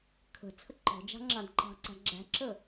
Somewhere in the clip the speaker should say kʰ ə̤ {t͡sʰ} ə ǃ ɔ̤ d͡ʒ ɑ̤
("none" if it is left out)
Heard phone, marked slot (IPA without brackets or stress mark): t͡sʰ